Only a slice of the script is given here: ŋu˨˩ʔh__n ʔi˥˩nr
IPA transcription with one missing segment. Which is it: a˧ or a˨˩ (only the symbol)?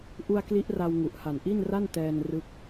a˨˩